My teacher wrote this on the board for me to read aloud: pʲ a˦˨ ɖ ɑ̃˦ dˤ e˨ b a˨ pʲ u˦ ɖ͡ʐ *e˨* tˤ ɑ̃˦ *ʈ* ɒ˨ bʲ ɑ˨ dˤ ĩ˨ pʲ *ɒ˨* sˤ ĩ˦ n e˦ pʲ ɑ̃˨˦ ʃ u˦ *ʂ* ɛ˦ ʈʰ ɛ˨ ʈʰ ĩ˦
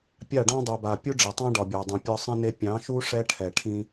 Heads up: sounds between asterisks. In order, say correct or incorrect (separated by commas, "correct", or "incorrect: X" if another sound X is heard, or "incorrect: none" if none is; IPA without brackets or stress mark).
correct, incorrect: ɖ, incorrect: ɒ˦, correct